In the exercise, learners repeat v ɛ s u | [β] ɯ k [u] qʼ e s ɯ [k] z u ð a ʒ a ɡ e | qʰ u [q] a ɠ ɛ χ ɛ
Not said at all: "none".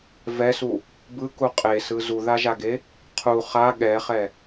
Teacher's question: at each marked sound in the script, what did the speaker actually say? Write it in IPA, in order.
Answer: b, u, none, χ

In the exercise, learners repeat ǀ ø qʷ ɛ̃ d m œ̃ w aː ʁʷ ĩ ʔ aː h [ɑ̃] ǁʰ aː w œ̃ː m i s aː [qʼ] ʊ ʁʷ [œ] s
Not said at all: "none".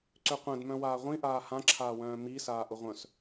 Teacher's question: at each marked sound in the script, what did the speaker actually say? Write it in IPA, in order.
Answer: ã, ʔ, œ̃

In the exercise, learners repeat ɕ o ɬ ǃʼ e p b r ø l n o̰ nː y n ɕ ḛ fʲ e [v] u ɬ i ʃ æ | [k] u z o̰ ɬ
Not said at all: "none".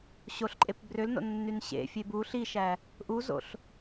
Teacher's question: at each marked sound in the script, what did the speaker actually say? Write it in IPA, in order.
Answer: b, ʔ

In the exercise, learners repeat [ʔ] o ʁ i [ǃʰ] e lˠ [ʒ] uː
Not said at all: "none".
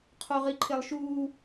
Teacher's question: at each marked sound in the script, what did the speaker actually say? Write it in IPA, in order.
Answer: qʰ, ǃʰ, ʃ

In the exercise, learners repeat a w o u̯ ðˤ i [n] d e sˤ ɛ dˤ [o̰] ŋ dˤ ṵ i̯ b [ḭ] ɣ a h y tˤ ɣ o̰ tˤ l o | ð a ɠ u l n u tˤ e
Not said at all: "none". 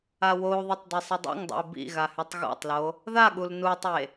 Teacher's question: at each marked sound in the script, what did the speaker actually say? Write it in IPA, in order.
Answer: tˤ, ṵ, ḭ

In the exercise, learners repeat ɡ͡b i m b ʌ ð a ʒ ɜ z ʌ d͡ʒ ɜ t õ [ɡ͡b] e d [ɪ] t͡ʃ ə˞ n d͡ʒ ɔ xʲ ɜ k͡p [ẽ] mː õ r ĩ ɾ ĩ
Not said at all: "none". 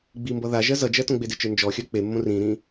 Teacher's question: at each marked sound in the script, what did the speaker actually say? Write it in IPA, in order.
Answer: ɡ͡b, ɪ, e

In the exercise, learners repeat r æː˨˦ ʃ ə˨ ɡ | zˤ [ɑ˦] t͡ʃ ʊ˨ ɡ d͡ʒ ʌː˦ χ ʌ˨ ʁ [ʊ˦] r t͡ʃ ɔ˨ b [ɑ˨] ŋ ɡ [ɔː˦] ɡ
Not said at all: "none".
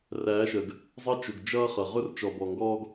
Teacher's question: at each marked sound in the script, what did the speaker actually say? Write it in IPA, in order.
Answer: ɑ˦, ʊ˦, ɔ˨, ɔː˦

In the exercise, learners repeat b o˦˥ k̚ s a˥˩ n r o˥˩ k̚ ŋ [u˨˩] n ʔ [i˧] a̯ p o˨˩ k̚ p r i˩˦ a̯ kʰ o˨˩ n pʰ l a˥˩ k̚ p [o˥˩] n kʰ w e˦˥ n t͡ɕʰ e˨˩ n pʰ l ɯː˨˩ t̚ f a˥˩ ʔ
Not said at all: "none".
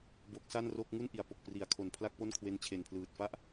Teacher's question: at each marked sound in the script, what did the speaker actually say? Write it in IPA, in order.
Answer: u˥˩, i˩˦, o˥˩

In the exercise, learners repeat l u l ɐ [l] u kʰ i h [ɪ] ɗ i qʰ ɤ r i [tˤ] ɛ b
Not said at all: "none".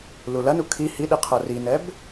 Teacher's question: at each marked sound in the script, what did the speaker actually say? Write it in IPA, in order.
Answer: n, i, n

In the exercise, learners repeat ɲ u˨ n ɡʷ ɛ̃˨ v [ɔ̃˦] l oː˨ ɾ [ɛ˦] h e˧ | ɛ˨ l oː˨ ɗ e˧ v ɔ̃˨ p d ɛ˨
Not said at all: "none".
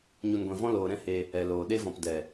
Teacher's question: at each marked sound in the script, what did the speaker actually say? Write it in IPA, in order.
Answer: ɔ̃˧, ɛ̃˦

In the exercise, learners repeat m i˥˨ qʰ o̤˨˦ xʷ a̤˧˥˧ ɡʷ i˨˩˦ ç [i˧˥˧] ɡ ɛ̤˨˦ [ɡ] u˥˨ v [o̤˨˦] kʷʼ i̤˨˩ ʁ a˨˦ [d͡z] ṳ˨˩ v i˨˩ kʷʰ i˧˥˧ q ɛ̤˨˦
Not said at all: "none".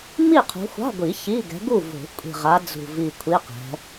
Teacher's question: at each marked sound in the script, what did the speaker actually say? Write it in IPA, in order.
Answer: i˧˥˧, ɡ, o̤˨˩˦, d͡z

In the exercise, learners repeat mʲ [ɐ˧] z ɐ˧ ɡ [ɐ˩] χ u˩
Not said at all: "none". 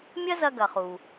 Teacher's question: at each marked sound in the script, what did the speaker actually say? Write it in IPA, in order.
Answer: ɐ˥, ɐ˩

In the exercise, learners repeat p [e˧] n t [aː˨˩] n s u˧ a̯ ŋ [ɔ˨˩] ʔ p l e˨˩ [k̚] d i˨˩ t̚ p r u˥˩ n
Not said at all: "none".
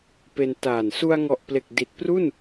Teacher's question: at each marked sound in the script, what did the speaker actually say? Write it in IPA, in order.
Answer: e˧, aː˨˩, ɔ˨˩, k̚

